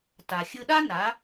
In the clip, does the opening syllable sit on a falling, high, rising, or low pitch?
low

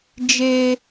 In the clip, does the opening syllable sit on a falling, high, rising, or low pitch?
high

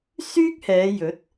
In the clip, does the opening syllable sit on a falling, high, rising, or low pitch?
high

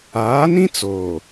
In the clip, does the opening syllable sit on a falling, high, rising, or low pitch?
rising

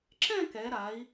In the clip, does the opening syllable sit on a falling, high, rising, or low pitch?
falling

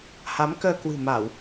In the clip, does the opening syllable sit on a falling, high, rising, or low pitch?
rising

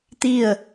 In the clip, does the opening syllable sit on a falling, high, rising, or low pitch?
falling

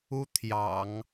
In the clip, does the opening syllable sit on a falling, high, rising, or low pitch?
high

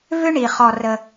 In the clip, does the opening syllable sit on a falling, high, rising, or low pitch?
high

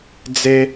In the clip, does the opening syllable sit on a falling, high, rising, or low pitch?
high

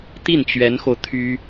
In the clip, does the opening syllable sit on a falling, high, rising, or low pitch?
falling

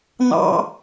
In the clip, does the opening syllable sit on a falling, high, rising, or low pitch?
high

